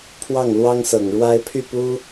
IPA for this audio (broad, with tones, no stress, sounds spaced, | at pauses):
pʰ w ɑ˥˩ ŋ l w ɑ˥ ŋ s ɤ˨˩ ŋ ɻ w a˥ ɪ̯ pʰ y˥˩ p u˥